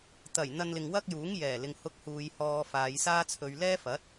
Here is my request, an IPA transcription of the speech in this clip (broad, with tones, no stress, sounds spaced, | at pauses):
t̪ ɐ˨˩ j n̪ ɐ˧ n l ɪ˨ ŋ w ɐ˥ k̚ j uː˨˥ ŋ j ɛː˨˩ l ɪ˨ ŋ h ʊ˧ k̚ h uː˨ j h ɔː˧ f aː˨˧ j s aː˥ t͡sʰ ɵ˧ ɥ l ɛː˥ f ɐ˨˥ t̚